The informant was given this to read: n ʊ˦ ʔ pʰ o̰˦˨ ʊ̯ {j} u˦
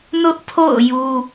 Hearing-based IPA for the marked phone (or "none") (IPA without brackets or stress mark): j